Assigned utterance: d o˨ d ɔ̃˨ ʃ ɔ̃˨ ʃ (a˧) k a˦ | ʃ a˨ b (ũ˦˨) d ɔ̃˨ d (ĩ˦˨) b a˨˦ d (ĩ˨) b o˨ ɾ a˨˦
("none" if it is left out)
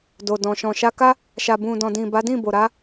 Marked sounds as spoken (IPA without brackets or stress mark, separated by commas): a˧, ũ˨, ĩ˨, ĩ˦˨